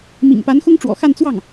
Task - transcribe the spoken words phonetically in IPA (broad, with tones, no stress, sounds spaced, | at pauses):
m ḭ˨˩ ŋ p a˧˥ n x ʊ˥ ŋ ʈ͡ʂ w ɔ̰˨˩ x a˥˧ n t͡s w ɑ˥˩ ŋ